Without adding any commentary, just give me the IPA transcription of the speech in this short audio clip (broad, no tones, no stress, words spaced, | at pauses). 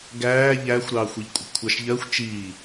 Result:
ɡæː ʎæːxʷɾɑːxʷiʎkʷʼɑ̤ kʷʰɑʃʎɜxʷ t͡ʃiː